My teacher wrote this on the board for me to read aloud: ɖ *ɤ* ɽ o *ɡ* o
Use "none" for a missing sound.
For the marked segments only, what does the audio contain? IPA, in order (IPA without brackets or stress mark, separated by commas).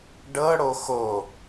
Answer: ɤ, x